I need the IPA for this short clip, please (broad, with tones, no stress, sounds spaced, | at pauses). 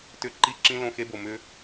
t ʏ˧ ǃ i˦˨ ǁ ĩ˦ l õ˦˨ x e˦ b o˨ m ʏ˦